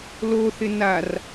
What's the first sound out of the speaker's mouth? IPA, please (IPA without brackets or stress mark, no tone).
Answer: l